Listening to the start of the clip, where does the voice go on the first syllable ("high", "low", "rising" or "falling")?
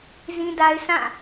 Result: high